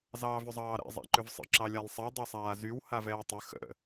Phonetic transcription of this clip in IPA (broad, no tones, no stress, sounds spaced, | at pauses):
z ɑː v ʏ zˤ ɑː ɾ ɛ̰ zˤ a̰ ǃ ʏ v sˤ ə̰ ǁ ɑ lʲ a lˠ sˤ ɛ dˤ ɛ sˤ aː z y w h a v ɛː tˤ ə x ə̰